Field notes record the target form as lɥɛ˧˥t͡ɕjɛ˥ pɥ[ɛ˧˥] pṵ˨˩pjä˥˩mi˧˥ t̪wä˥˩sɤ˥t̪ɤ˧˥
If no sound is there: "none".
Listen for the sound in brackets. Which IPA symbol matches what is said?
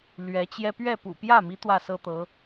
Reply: ɛ˥˩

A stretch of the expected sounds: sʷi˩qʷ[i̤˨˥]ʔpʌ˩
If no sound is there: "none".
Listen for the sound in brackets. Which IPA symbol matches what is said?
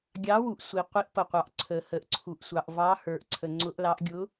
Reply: i˨˥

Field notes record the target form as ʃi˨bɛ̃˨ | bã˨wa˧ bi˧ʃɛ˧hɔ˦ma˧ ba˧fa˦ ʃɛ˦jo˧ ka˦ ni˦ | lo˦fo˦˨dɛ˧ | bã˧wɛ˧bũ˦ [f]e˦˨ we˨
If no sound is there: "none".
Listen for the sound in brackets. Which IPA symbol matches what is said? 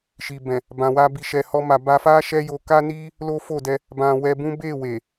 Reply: b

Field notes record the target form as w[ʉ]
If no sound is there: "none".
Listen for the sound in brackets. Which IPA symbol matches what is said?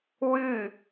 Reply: ʉ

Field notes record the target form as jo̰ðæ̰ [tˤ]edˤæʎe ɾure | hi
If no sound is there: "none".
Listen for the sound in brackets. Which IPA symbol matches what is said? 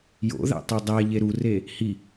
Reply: tˤ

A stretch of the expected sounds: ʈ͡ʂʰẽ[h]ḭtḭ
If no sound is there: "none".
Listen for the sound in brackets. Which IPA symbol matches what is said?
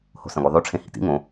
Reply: h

